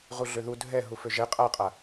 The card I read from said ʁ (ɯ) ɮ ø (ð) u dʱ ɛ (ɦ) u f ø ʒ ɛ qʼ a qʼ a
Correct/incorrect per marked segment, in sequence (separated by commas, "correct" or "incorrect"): incorrect, correct, correct